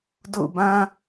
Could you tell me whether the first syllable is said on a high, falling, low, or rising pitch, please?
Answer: falling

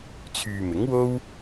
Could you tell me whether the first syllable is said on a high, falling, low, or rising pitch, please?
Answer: low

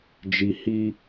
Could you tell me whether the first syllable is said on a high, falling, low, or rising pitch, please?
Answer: low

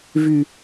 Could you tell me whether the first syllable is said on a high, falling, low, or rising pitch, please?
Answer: low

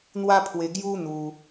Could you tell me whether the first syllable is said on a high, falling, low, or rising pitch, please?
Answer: high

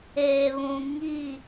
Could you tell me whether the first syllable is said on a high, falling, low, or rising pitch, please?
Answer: low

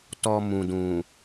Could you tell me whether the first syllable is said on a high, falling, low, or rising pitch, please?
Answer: low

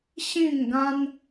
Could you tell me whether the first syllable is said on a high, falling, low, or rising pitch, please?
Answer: falling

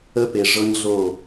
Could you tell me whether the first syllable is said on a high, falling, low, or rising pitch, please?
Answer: high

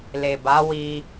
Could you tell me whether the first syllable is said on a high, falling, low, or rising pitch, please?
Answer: low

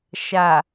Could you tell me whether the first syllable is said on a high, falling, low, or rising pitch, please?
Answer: low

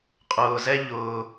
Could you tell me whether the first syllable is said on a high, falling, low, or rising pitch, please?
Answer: low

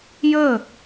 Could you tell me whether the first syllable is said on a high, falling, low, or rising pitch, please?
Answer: falling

